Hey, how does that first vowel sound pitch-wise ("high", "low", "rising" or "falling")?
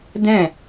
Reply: falling